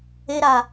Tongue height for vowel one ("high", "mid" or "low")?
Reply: mid